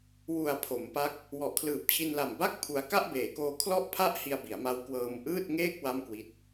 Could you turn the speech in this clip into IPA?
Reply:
w u˩˦ a̯ pʰ o˩˦ m p a˦˥ k̚ | w ɔ˨˩ ʔ kʰ l ɯː˨˩ p̚ t͡ɕʰ i˧ n l a˨˩ m b a˥˩ k̚ pʰ u˧ a̯ k a˥˩ ʔ b eː˩˦ k oː˧ kʰ l ɔ˥˩ ʔ pʰ a˥˩ ʔ h i˧ a̯ b i˩˦ a̯ m a˦˥ w k w ɤː˧ m ʔ ɯː˥˩ t̚ ŋ eː˥˩ k̚ w a˥˩ m k w i˦˥ t̚

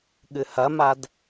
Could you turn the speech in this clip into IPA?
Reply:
ɠ ɨ h ɐ m a d

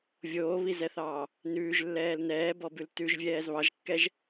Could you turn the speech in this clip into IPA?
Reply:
vʲ oː β i z ɛ θ ɑː | n ʉː ʒ lː ɛː l n ɛː b ɔ b ʉ l t ʉ ʒ vʲ ɛː z β ɑ ʒ kː ɛ ʒ

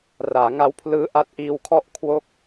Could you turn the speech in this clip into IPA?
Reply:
r aː˩˦ ŋ a˦˥ w pʰ l ɯː˦˥ ʔ a˦˥ t̚ ʔ iː˧ w kʰ ɔ˥˩ ʔ kʰ w o˥˩ k̚

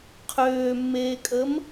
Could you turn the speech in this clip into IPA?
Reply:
qʰ øː mː eː kʼ əː m

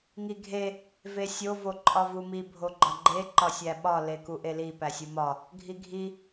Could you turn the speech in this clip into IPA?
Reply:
ŋ i ɡʱ e | v e sʲ o v o ǃʼ ɒ v u m i bʱ o ɡ͡ǃ ɒ ɡ͡ǃ e ǃ ɒ sʲ æ ɓ ɒ l e k u ʔ e l i p æ sʲ u m ɒ | ɡʱ i ɡʱ i

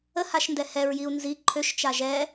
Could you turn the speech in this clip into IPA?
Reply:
ə h a ʃ n d ɛ h ɛ ɹ j i u̯ n z i ǃʰ ø ʃ t͡ʃ a ʒ ɛ

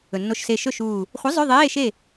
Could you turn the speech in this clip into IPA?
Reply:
ɵ˩ nː o˧˩ ʃ s e˧˩ ʃ ɵ˥˨ ʃ uː˧˩ | χʷ ɐ˨˥ zˤ ʉ˧˥˧ ðˤ eː˧˥˧ ʃ e˥˨

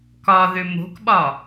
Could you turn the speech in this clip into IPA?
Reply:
k ɒ ð ʏ m o̤ k ɓ ɒ

